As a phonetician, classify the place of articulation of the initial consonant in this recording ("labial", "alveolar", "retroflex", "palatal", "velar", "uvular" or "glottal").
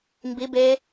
labial